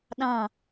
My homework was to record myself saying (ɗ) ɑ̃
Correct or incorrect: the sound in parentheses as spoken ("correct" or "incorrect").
correct